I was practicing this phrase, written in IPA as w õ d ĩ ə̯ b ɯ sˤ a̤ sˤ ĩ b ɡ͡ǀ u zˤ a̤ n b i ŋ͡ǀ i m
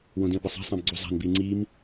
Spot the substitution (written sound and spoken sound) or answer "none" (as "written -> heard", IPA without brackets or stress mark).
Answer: none